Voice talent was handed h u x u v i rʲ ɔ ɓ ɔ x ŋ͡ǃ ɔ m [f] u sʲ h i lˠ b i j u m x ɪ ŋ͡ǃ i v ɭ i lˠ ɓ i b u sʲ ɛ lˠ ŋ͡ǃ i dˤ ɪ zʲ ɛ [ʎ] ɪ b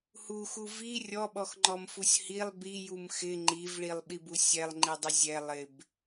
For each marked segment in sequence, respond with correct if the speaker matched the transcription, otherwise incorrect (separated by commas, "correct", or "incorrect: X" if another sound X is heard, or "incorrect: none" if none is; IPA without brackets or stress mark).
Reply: correct, incorrect: lˠ